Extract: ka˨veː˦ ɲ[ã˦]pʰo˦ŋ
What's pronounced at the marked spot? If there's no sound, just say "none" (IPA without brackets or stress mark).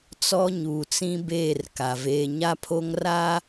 a˦